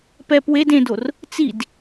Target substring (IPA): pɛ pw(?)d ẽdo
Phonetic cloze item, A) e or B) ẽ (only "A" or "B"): A